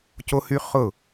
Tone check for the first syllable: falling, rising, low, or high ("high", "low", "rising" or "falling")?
high